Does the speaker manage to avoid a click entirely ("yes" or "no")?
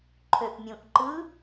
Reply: no